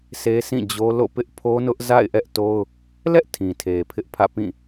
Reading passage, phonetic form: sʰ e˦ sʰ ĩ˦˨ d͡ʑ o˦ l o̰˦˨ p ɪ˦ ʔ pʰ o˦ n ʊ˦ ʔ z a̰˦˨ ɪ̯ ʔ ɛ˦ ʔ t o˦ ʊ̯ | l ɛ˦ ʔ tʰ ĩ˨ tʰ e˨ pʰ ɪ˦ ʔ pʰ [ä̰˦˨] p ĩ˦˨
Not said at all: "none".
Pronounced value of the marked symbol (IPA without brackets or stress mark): ä̰˦˨